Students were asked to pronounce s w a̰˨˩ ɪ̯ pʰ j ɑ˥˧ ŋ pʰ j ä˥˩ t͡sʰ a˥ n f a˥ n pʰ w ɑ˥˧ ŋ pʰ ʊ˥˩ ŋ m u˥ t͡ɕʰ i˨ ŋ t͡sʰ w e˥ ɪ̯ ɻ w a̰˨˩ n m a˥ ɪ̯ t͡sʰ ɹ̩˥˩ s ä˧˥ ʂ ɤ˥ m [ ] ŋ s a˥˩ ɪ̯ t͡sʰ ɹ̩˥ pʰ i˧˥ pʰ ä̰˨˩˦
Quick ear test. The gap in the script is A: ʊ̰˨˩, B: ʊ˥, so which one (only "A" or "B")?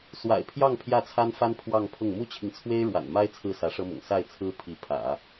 A